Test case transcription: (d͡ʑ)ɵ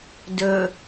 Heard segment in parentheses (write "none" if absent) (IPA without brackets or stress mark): d